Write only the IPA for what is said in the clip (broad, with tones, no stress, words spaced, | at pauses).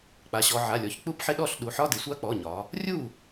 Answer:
k͡pa˩˧ɕɔ˩˧ʕa˩˧˩lʲɔ˩˧ç k͡pu˦˥pħɪ˧˥˧ɗɔ˥˩ɬ ɗu˩˧ħɒ˧˥˧dɪ˩˧ sʷa˦˥k͡pɔ˩˧˩ɲɒ˩˧ | rʲu˥˩